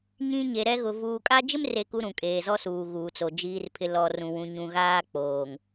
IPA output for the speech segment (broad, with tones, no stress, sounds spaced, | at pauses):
ɲ ĩ˦ ɲ e˨ ɾ ɛ˦ ɣ ʊ˨ v uː˨ kʼ a˦ d͡ʒ ɪ˦ m r e˨ k u˨ ɾ ũ˨ kʼ eː˨ z ɔ˦ s uː˨ ɣ uː˨ t͡s o˨ d͡ʒ iː˦ r pʰ ɪ˦ l ɔ˨ r ũ˨ w ũ˨ ɲ ũ˨ ɣ aː˦ k͡p oː˨ ŋ